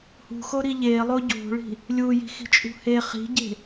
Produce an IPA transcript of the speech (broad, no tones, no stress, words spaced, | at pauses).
hṳxoɾi ʎelˠo ɟo̤ɭi̤ | lʲuji̤xi̤t͡ʃʼṳ he χi̤ɟe̤